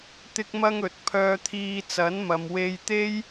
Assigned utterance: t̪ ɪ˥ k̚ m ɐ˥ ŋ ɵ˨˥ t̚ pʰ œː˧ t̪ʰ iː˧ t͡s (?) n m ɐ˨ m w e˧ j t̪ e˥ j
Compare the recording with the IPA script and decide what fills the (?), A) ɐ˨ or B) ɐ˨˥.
B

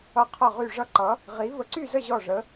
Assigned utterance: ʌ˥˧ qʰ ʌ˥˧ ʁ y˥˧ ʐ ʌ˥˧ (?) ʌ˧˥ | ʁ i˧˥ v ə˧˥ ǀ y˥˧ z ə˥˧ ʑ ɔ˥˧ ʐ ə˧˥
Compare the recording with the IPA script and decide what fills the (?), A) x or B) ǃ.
B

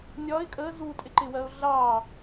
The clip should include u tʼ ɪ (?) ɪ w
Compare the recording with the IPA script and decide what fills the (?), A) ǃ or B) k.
A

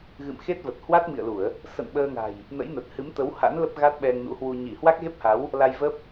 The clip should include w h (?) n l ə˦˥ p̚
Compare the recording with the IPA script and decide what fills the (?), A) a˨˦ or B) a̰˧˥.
B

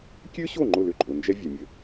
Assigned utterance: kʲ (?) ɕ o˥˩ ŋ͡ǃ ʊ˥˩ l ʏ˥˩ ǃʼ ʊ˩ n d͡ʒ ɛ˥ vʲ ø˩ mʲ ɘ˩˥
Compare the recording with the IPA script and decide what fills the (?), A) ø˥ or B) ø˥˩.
A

